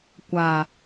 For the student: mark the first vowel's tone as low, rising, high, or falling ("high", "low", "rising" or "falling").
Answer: low